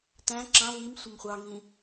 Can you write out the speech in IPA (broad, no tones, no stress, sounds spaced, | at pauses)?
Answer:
t æ̃ ǁ ɑ̃ v i m sʷ ə m χʷ ɑ ŋ ĩ